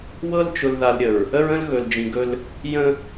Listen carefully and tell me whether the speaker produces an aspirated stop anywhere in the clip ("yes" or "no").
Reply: no